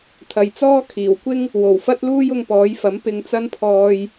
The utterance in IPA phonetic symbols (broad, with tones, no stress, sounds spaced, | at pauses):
t̪ʰ ɐ˨ j t͡s ɔː˥ kʰ iː˨˩ w kʷ ɪ˥ ŋ | w o˨˩ w f ɐ˥ t̚ l uː˥ j ʊ˧ ŋ p ɔː˨˥ j f ɐ˨˥ m p ɪ˧ ŋ t͡s ɐ˥ n pʰ ɔː˧ j